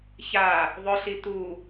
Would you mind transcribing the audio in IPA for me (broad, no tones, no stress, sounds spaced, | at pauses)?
ç a | ðˤ ʊ ɬ i t̪ u